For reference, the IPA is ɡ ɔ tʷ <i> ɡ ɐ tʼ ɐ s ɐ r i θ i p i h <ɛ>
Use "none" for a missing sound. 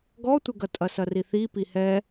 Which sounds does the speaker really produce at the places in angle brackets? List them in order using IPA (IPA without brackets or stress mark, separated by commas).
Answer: ɪ, ɛ